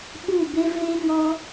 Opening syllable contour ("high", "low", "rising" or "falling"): falling